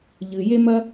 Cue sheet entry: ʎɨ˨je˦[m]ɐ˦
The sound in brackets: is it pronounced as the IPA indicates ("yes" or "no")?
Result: yes